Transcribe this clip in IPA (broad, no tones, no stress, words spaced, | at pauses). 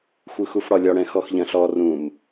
xʷɯxufɽɒlʲɒ ɽɛ̃xɔxʎɐ̃ɬɔ rũm